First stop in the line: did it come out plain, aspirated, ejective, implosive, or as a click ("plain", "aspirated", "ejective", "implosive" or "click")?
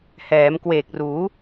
plain